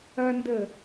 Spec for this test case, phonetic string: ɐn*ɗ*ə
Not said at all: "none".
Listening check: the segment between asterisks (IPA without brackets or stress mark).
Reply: d